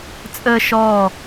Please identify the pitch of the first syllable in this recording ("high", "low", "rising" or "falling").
high